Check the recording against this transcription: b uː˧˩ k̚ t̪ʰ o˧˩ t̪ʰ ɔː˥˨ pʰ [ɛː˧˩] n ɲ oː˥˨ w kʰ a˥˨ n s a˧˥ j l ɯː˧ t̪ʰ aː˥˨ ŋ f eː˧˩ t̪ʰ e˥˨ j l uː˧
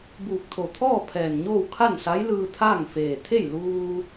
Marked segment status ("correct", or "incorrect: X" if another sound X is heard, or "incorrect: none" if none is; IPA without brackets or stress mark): correct